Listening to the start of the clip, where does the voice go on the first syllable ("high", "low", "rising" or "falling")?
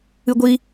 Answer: high